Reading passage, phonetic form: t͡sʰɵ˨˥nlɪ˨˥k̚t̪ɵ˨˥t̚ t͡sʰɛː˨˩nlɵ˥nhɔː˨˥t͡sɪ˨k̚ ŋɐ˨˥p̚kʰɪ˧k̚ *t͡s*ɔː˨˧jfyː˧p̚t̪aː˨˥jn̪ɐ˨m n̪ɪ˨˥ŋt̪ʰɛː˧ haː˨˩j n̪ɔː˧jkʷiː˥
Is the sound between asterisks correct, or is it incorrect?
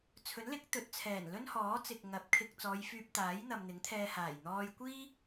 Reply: correct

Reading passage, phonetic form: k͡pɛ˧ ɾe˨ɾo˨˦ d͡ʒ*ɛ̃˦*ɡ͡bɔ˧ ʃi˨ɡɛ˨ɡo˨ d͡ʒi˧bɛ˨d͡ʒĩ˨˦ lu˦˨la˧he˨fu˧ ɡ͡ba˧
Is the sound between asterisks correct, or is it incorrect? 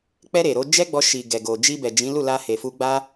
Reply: incorrect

